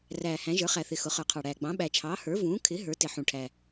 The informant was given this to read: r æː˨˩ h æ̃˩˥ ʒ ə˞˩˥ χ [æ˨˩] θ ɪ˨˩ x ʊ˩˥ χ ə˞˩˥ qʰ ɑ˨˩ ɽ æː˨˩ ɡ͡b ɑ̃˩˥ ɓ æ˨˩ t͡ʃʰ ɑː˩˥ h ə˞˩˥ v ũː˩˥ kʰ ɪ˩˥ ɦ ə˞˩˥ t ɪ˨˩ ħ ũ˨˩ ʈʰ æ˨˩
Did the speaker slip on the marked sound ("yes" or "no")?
no